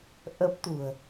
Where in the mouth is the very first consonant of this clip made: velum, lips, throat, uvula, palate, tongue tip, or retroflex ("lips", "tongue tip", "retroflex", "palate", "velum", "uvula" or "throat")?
throat